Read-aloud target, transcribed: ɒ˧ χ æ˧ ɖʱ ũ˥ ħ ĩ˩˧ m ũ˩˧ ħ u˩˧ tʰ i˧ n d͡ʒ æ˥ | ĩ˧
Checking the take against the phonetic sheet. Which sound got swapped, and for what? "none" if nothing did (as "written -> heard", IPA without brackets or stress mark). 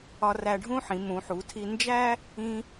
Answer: χ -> r